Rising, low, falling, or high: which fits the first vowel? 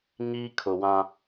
high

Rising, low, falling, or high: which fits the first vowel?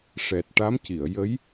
low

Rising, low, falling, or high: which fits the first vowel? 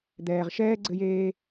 low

